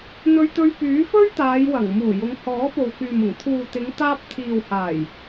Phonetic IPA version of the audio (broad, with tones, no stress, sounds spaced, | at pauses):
n̪ ɵ˧ ɥ t̪ ɵ˧ ɥ p yː˨˥ f ɵ˥ ɥ t̪ aː˨˧ j w ɐ˨˩ ŋ m uː˨˩ j ʊ˨˧ ŋ h ɔː˨˥ p o˨ w k yː˨ m ʊ˨˩ ŋ t̪ʰ uː˨ t̪ ɪ˨˧ ŋ t̪ aː˧ p̚ t̪ʰ iː˨ w h aː˨˩ j